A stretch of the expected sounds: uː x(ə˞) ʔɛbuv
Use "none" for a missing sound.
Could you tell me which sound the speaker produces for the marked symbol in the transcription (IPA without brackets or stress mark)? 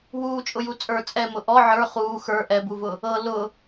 ə˞